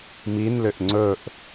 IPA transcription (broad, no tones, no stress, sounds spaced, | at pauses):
m i n l ʏ ʔ ŋ͡ǀ ɵ ʔ